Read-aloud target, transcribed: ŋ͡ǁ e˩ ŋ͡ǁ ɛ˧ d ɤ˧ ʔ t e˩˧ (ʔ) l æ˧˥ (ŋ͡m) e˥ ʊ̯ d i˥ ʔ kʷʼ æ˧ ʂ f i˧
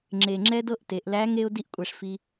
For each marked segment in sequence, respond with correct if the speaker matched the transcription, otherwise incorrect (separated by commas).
correct, incorrect